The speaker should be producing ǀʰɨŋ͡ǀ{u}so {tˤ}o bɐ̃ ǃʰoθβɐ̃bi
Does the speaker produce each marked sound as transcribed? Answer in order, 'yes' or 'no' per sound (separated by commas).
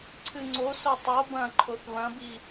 no, yes